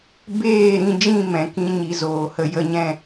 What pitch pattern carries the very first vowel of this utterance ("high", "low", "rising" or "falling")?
falling